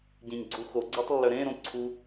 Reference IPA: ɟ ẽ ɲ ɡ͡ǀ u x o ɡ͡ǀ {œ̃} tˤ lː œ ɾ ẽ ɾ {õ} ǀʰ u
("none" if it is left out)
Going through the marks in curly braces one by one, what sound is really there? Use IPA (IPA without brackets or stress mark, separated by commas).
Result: œ, õ